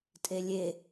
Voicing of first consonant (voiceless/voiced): voiceless